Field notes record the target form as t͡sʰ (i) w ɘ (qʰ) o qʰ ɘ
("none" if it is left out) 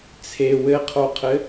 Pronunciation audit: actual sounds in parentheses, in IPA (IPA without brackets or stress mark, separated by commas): e, qʰ